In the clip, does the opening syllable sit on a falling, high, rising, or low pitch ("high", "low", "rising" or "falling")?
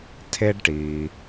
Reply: high